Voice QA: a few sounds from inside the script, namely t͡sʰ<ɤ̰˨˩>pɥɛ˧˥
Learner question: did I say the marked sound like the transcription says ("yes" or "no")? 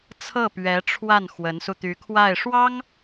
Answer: no